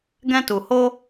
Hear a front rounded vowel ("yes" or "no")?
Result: no